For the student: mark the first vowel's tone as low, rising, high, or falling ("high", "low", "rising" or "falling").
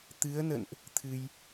rising